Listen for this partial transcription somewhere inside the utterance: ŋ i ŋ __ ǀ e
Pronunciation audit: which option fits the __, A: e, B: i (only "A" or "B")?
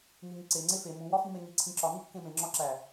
B